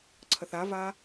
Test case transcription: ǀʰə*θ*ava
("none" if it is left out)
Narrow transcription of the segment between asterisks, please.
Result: θ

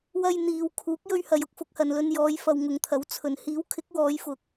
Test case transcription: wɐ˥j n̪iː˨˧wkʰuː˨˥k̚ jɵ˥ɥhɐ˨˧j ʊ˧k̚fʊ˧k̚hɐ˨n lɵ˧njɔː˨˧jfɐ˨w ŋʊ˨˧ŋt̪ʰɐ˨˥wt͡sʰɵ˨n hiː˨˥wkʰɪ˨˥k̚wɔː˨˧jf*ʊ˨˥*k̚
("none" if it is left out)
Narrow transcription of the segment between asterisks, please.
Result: ʊ˨˥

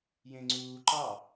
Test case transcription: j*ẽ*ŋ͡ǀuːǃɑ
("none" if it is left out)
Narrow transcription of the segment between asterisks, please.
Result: ẽ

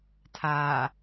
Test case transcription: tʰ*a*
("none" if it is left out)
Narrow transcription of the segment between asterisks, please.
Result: aː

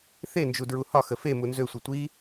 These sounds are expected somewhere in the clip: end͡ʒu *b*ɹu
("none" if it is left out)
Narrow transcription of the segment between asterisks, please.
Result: d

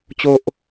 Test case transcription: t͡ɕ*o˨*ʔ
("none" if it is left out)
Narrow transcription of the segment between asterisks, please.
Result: o˦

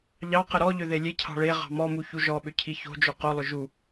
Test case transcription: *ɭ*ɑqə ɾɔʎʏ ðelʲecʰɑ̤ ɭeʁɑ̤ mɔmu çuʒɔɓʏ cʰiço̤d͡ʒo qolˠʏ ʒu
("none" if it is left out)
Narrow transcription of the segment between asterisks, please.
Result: ʎ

